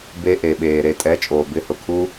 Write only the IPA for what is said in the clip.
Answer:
b e˧ ʔ e˨ ɓ eː˨ ɾ e˨ tʼ ɛ˨˦ t͡ʃʼ oː˨ b ɪ˨˦ h ʊ˨ kʰ u˦

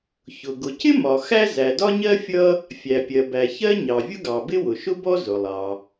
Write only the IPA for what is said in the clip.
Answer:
ç ʊ˩ ɡ ʊ˩ c ɪ˥ m ɒ˩ x æ˥ z æ˩ d ɒ˥ ɲ ɜ˥ fʲ ʌ˥ | fʲ æ˩ pʲ ɜ˩ b æ˩ ç ɜ˥ ɲ ɑ˩ vʲ ʊ˥ ɡ ɑ˩ b ɪ˥ w ʊ˩ ʃ ʊ˥ b ɔ˥ z ʊ˩ lˠ ɑ˩

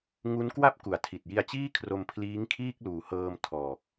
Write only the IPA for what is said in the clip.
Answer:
ŋ u˦˥ n k w a˥˩ p̚ k u˩˦ a̯ tʰ i˨˩ t̚ j i˧ a̯ t͡ɕ iː˥˩ kʰ r o˧ m pʰ l iː˦˥ ŋ kʰ iː˥˩ k̚ l uː˨˩ h ɤː˧ m tʰ ɔː˨˩ k̚

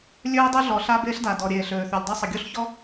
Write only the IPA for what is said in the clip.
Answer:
lʲ øː˥ dˤ u˥ ɮ ɔː˩ ɬ a˥ b eː˥ ɬ d a˩ d ɔ˩ ɾʲ eː˩ ɬ øː˩ θ ø˩ lʲ dˤ o˥ sˤ ə˩ ɡʲ o˥ ɬ ç ɔ˥

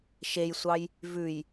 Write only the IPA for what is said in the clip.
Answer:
ʃ e j sʷ ɑ j | v ʉ j

